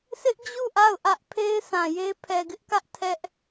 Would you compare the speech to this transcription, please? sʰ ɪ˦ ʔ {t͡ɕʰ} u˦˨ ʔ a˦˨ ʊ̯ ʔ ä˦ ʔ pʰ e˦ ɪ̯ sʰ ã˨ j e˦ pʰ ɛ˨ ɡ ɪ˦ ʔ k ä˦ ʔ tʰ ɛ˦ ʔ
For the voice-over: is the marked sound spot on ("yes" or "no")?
no